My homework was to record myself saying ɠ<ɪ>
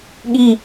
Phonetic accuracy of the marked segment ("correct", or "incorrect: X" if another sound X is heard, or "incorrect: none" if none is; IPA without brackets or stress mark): incorrect: i